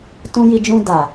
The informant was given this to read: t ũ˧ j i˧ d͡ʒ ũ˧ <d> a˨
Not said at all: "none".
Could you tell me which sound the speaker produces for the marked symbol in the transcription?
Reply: d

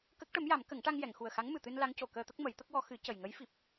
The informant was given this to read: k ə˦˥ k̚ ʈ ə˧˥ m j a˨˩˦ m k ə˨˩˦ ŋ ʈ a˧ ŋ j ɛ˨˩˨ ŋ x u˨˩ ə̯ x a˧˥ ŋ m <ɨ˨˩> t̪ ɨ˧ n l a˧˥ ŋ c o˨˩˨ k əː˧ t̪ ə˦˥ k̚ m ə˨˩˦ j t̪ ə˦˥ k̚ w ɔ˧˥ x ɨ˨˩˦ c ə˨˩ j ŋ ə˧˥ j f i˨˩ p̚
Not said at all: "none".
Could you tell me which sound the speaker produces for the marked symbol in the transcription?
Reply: ɨ˨˩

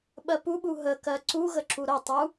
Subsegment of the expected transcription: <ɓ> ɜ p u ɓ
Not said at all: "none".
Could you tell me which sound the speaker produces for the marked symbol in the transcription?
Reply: ɓ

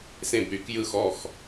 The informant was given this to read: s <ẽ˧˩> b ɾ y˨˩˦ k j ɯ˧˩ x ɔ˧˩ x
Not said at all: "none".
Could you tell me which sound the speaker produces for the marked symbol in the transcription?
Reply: ẽ˧˩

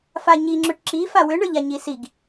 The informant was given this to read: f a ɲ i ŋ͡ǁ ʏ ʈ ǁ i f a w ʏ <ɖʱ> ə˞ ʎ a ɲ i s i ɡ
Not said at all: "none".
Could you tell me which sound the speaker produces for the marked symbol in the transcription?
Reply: ɳ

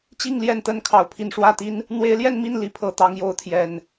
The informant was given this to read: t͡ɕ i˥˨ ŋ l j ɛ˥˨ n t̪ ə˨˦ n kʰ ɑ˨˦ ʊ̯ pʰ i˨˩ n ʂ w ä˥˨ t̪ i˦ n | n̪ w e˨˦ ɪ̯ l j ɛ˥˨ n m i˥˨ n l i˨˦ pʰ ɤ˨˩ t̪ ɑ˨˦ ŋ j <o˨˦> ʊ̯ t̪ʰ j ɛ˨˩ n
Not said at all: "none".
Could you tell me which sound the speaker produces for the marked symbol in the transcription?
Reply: o˨˦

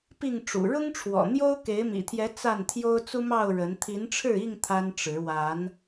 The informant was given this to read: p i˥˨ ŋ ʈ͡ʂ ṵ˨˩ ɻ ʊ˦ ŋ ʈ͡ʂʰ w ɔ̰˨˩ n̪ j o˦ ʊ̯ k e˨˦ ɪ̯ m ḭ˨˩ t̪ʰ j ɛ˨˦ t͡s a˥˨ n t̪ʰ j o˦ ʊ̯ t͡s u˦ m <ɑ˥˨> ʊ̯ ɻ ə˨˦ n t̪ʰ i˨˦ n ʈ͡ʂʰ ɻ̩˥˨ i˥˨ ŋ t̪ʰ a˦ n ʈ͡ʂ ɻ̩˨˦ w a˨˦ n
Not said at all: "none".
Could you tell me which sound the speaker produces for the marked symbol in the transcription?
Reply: ɑ˥˨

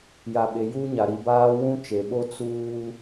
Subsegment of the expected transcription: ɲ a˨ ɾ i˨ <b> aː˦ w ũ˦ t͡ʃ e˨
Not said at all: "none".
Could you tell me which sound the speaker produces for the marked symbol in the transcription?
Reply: b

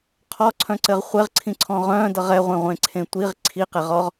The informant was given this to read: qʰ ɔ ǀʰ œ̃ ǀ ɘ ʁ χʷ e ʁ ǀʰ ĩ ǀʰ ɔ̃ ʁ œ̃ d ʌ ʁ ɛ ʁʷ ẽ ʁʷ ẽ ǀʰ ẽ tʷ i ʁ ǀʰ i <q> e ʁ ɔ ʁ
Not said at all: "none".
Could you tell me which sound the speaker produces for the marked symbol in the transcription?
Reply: q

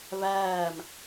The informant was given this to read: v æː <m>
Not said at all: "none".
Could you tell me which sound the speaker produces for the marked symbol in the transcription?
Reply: m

